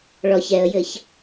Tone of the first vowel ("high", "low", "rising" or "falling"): low